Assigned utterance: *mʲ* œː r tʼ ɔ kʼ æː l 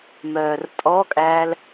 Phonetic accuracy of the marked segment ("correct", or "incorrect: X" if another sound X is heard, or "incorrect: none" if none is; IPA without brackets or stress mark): incorrect: m